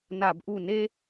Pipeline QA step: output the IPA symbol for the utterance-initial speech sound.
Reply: n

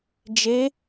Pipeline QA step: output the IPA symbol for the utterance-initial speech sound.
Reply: d͡ʒ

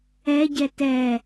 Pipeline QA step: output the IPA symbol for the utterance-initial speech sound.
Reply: ɛ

